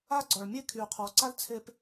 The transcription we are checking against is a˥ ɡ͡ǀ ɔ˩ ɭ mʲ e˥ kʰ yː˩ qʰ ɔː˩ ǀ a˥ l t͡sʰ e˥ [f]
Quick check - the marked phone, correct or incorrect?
incorrect